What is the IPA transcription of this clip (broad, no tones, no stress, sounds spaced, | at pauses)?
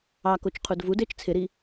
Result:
ɑ k o t͡ʃ qʰ u d v u d ɪː t͡ʃ t͡sʰ ɪ ɾ i